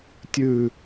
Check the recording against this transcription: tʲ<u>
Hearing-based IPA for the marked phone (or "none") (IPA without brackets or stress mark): ʉ